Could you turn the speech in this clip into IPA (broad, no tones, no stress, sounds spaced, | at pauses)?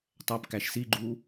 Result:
tˤ æ p k æ ʃ s i ɡ͡ǃ uː